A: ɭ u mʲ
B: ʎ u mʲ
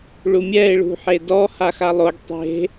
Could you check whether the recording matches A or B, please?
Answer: A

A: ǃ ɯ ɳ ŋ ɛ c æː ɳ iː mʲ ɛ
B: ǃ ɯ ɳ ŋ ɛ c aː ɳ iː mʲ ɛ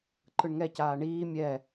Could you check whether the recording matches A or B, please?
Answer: B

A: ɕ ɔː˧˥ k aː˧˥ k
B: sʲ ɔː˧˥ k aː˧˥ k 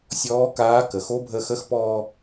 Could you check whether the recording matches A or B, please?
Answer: B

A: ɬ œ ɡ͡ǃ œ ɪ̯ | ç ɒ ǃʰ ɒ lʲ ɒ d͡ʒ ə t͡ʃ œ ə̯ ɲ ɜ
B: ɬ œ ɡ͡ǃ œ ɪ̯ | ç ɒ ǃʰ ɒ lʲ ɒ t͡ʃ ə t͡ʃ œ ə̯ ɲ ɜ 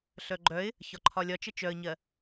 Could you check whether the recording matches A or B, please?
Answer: B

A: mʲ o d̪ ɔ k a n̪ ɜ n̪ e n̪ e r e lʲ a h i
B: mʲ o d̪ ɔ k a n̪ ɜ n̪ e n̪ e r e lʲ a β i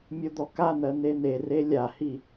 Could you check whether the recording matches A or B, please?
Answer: A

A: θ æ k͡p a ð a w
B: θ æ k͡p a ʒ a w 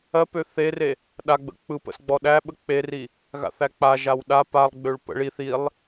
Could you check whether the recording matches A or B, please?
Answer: B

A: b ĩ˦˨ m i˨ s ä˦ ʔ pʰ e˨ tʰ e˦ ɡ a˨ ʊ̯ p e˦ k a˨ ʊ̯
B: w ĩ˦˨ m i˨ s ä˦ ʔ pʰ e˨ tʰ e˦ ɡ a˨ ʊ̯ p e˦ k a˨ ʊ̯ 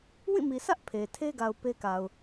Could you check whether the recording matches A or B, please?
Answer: B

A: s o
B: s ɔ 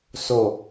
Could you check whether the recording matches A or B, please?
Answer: A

